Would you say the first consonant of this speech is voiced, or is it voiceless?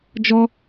voiced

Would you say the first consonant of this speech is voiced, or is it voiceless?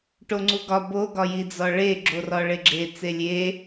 voiceless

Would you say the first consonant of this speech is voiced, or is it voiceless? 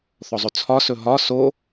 voiceless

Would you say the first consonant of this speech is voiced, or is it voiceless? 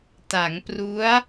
voiceless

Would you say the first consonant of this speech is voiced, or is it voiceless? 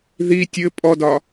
voiced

